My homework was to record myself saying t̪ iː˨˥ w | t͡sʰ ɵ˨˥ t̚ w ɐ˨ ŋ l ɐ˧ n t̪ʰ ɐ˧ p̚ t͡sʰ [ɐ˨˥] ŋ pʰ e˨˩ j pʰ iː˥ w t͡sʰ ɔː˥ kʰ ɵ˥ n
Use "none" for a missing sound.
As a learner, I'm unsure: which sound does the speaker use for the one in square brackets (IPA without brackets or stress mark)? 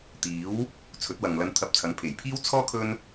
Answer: ɐ˨˥